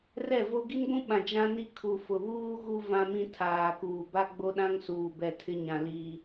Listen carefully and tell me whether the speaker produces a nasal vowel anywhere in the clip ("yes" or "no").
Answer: yes